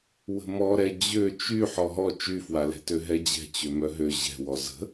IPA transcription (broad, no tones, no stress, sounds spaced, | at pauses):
w ə̤ m ɔ ɾ ɛ d͡ʑ ø t͡ʃ y ħ ɔ ɦ ɔ t͡ʃ y f w a l ɛ̤ t ø ɦ ɛ d͡ʑ ɛ̤ t͡ɕ ø m œ ɦ ø ʑ ɛ̤ w ɔ z ə̤